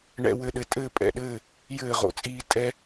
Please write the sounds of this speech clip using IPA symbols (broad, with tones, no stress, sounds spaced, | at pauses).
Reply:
ɳ ɛ̰˦ w ɘ˥˩ ɗ ɘ˦ tʼ ɘː˥˩ pʼ ɛ̰˥˩ ɗ ɘː˥˩ | j ɘː˥˩ ʁ o̰˦ t͡sʼ iː˦ tʼ ɛ˦